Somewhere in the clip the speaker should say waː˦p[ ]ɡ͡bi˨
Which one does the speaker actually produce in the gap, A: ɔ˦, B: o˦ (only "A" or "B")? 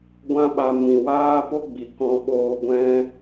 B